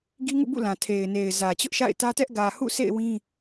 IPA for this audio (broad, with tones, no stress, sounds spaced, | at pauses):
ɡ i˦ ŋ ṵ˦˨ b ṵ˦˨ l ã˨ tʰ e˨ ɪ̯ n e˨ ɪ̯ z ä˨ t͡ɕ ʊ˦ ʔ ʃ a̰˦˨ ɪ̯ t ä˦ t ɛ˦ ʔ ɡ ä˨ h ṵ˦˨ sʰ ḛ˦˨ ɪ̯ w ĩ˦